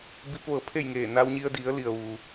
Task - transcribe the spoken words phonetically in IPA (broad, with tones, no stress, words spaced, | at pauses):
bi˧˥p̚ʋɤː˩˧ pʰe˥˨jŋeː˧˩ na˧wɲi˧ə̯di˩˧ə̯ li˩ə̯ʋu˩